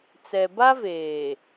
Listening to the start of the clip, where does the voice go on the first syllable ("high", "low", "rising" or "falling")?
low